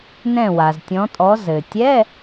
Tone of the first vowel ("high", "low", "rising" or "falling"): falling